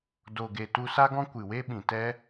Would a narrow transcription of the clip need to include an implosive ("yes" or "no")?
yes